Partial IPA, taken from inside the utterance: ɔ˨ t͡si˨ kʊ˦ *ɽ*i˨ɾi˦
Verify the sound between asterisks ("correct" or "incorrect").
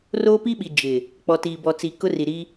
incorrect